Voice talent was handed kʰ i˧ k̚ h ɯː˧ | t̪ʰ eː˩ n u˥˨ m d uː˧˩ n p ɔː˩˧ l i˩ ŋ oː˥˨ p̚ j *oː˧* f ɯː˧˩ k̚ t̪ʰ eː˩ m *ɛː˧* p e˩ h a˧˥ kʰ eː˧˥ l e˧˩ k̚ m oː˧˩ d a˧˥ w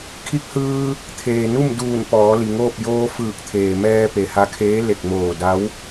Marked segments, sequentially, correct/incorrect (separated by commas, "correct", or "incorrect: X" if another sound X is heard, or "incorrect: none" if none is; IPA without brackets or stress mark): correct, correct